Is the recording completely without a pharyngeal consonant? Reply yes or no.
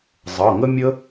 yes